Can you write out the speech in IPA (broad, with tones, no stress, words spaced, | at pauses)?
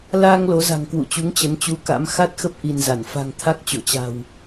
la˧ŋ lo˨˦za̤˨˩ŋkwṵ˧˨t͡ɕu˨˦ŋ t͡ɕə˨˦nt͡ɕu˧ka̰˧˥m xa˦˥t̚xə˦˥p̚ ʔi˧nza˧˩n fa̤˨˩ŋt̪ʰa˦˥k̚ t͡ɕo̰˧˨t͡ɕa̤˨˩w